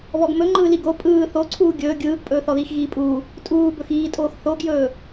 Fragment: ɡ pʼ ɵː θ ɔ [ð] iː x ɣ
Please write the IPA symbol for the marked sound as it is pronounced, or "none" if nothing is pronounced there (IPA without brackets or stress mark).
ð